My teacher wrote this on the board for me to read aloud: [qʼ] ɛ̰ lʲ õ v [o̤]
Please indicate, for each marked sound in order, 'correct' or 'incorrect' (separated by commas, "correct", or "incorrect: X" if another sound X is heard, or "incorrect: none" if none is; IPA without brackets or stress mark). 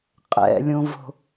correct, correct